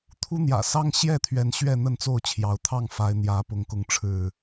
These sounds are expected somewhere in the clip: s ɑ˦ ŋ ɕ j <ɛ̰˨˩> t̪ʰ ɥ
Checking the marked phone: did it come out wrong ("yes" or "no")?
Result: yes